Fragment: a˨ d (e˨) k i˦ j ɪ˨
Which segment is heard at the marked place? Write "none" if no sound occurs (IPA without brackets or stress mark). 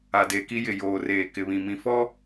e˨